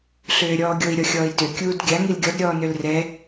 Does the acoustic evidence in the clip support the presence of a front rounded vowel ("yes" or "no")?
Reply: yes